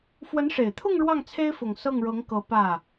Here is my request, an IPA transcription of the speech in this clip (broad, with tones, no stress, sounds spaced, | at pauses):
f w ə˧˥ n ʂ e˨˩ ɪ̯ t̪ʰ ʊ˥˧ ŋ ɻ w ɑ˥˩ ŋ t͡sʰ e˥ ɪ̯ f ʊ˨˩ ŋ s ɤ˥˩ ŋ ɻ ɤ˧˥ ŋ k ɤ˧˥ p ä˥˩